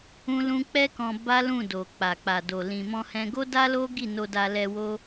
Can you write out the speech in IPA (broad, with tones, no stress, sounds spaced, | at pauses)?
ũ˦ l ũ˦ k͡p ɛ˦ k ɔ̃˧ b a˦ l ũ˦˨ d o˨ k͡p a˨ k͡p a˨ d o˨ l ĩ˨ m ɔ̃˧ h ɛ̃˧ ɡ o˦ d a˦ l o˦ ɡ i˦˨ n o˧ d a˧ l ɛ˧ w o˦